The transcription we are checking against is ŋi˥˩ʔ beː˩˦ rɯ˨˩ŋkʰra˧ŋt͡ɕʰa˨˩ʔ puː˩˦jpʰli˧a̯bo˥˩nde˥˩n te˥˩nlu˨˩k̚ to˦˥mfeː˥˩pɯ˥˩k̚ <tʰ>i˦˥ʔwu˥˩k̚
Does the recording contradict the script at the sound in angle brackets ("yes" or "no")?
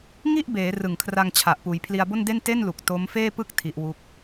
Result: no